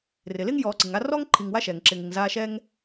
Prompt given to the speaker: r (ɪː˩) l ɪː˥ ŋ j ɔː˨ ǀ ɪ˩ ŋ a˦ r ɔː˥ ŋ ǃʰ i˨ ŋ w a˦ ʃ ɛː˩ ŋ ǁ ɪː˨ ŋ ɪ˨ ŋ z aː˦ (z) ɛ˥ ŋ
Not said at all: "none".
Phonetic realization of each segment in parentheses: ɪː˩, ʃ

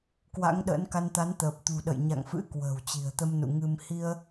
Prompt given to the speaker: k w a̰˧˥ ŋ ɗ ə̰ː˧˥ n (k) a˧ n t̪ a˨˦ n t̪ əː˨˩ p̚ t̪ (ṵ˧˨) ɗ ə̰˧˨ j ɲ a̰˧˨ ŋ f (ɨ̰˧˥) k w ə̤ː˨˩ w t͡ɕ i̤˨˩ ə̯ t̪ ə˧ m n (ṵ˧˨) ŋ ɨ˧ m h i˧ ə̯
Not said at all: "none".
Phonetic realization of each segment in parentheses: k, ṳ˨˩, ɨ̰˧˥, ṵ˧˨

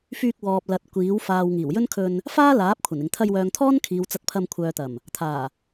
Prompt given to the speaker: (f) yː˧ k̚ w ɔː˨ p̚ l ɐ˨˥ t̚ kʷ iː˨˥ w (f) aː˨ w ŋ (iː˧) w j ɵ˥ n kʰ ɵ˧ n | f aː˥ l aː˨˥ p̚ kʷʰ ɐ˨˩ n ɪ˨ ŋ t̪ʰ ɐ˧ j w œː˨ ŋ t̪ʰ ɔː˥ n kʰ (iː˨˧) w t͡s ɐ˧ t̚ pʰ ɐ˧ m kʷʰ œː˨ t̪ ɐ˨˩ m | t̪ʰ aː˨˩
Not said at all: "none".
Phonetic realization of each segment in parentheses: f, f, iː˨˩, iː˨˧

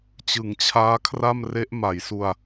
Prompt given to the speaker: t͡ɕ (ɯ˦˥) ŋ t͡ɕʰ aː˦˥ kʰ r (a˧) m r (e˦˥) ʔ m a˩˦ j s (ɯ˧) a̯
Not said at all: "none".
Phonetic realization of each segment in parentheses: ɯ˩˦, a˥˩, e˦˥, u˧

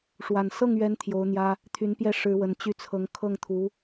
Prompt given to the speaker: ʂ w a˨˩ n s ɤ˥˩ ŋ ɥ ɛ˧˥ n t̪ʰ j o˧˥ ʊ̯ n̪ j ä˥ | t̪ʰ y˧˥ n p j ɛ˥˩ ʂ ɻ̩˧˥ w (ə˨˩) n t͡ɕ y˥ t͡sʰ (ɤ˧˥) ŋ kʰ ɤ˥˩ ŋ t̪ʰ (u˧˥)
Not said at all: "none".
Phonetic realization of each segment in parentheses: ə˨˩, ɤ˧˥, u˧˥

